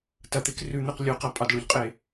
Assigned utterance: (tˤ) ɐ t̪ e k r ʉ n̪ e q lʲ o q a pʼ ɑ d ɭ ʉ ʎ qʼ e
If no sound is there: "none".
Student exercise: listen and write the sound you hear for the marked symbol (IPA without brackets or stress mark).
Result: t